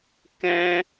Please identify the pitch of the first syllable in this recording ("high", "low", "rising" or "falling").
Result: high